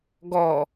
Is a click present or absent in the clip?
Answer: absent